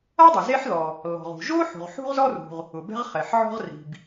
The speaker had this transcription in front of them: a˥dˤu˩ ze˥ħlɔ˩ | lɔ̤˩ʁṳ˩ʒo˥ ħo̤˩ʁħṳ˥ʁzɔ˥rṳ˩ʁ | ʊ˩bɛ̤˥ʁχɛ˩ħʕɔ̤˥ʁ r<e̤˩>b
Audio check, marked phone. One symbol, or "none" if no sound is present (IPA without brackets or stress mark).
i̤˩